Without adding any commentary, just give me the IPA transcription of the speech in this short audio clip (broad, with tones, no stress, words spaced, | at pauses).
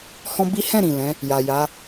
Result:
hɔ̃˦bi˦ hɛ̃˦˨ɾĩ˨ lɛ̃˨˦ | ja˨ja˨˦